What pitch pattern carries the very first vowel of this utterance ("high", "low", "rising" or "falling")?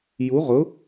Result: rising